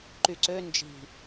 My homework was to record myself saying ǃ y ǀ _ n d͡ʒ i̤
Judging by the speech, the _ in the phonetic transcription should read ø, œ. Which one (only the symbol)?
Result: ø